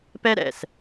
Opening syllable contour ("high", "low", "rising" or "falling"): high